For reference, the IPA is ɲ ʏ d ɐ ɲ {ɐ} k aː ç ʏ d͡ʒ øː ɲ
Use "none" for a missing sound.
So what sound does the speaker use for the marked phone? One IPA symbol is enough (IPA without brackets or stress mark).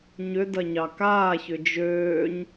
ɑ